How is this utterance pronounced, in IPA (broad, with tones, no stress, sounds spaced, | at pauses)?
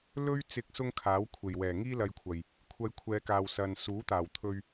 l ɵ˥ ɥ t͡s ɪ˧ k̚ s ʊ˥ ŋ kʰ aː˨˥ w kʷʰ e˨˩ j w ɛː˨˩ ŋ iː˥ l ɐ˧ j kʷʰ ɐ˨ j | kʷʰ ɐ˧ j kʷʰ ɛː˨˧ k aː˨ w s ɐ˨ n s uː˨˥ t̪ aː˨˩ w t̪ʰ ɵ˧ ɥ